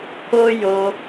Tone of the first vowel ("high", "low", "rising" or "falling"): high